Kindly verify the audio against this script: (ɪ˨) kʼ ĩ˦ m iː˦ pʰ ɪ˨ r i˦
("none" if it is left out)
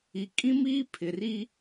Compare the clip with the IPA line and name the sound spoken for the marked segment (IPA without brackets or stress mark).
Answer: i˨